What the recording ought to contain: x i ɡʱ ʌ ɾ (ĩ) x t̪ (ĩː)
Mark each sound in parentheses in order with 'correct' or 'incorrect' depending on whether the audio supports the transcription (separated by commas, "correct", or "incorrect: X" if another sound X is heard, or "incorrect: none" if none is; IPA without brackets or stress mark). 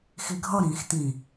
correct, incorrect: ĩ